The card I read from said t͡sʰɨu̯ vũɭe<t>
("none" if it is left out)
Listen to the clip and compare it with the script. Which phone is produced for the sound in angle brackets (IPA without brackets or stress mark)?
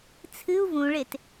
t